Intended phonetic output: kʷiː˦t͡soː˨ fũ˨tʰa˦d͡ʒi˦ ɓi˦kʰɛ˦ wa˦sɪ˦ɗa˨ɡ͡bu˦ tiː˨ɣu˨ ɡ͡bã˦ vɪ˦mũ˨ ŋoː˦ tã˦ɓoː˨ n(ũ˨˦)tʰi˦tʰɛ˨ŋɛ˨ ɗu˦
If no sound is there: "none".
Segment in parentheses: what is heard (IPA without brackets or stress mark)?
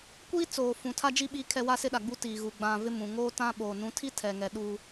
ũ˨˦